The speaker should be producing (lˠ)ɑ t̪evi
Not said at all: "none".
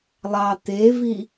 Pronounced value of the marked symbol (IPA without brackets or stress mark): lˠ